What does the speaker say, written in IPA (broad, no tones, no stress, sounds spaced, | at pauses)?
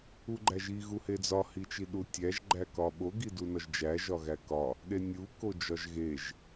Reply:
u ɡ͡ǃ æ ʒ i ɣ u h e d͡z ɒ h i t͡ʃ i ɗ u tʲ æ ʒ ɡ͡ǃ æ k ɒ ɓ o ɡ i d u n ɒ ʒ d͡ʒ æ ʒ ɒ ɣ æ k ɒ | ɗ e nʲ u k o d͡ʒ ɒ ʒ ɣ e ʒ